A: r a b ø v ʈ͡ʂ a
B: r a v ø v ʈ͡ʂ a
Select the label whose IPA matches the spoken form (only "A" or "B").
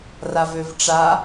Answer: B